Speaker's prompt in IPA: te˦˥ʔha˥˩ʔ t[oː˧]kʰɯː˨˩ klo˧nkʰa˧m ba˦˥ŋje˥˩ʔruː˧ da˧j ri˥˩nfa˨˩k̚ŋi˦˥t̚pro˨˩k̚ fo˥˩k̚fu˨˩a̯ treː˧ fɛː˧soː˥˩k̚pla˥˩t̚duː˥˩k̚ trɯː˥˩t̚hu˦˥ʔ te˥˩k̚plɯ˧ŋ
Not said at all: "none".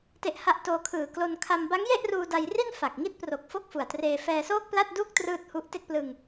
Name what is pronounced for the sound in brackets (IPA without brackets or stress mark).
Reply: oː˧